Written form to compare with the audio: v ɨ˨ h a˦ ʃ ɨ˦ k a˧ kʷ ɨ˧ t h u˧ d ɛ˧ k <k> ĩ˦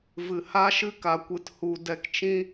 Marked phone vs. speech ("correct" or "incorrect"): incorrect